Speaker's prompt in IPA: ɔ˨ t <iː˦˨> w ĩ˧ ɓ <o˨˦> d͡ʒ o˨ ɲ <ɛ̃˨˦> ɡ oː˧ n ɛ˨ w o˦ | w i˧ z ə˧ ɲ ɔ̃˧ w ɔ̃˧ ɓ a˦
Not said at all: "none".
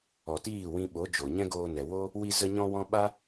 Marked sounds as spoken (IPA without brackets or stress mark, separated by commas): iː˦˨, o˨˦, ɛ̃˦